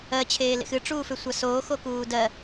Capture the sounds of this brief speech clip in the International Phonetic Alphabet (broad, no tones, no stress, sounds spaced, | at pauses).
ɜ t͡ɕʰ eː l ḛ x ɨ ʈ͡ʂ uː f ʏ sʷ a s oː x o k uː d ɜ